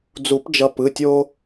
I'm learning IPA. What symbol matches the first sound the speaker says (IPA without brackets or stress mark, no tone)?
d͡z